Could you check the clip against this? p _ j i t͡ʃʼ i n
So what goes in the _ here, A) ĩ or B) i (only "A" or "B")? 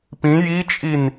A